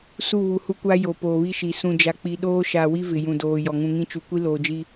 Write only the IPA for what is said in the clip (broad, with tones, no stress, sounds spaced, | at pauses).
s u˦˨ β u˨ h u˦ kʷ a˦ j o˨ p oː˨ β i˦ ʃ i˨ s ũ˨ d͡ʒ a˨ k͡p i˨ ɗ oː˦ ʃ a˨ w i˦ v ɪ˨ j ũ˨ d oː˨ j ɔ˨ ŋ ũ˨ ŋ ĩ˦ t͡ʃ u˨ kʷ i˦ l oː˨ d͡ʒ i˦